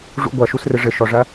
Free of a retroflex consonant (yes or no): no